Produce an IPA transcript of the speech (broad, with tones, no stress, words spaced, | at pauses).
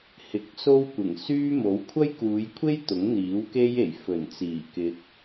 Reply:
hɪ˨˥k̚so˥w kʷɪ˨˩ŋ syː˥mo˨˥w kʷʰɐ˥jkuː˨˧jkʷʰe˥j t̪ʊ˨˥ŋn̪iː˨˥wke˥je˨˩j fɵ˨˩nt͡siː˨˩ kɪ˨˥k̚